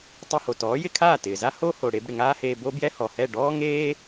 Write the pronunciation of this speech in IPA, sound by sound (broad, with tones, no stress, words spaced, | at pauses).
tˤɛ˧ho˩tɔː˩˥jɪ˧ kʰaː˥˩tɪː˩za˥ ho˥ho˩ ɽe˧b ɽɪ˩ŋaː˥heː˧ bo˥bjɛ˥hɔ˩hɛ˥˩ ɖɔː˥ ŋeː˥